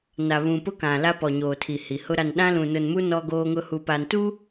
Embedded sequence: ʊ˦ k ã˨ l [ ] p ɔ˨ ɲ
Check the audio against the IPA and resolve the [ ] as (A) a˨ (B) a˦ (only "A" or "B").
B